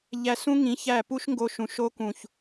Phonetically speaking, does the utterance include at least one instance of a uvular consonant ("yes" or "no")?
no